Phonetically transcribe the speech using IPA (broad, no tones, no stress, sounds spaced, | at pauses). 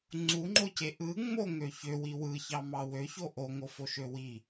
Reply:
ŋ͡ǀ u ŋ͡ǃ o c e ʔ ɯ ŋ͡m o ŋ ø ç ø w i w ɯ ç ɑ m ɑ w ø ç o ʔ o ŋ o f o ʃ ø w i